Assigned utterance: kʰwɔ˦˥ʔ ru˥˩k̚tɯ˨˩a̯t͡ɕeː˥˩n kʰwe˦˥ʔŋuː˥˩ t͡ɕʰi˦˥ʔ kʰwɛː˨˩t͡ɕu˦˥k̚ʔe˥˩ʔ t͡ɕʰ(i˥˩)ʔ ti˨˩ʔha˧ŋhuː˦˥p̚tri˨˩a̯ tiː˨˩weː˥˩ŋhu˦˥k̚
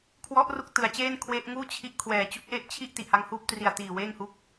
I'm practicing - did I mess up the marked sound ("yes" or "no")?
no